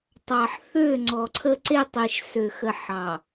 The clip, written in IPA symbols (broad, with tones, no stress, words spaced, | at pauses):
tˤɑ˨ħθø˦˨ ŋ͡ǀɔ˨ǀʰə˦ǀe˦ tˤe˨ʃsø˨xə˨ ħɑ˨